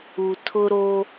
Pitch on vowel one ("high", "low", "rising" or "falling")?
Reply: low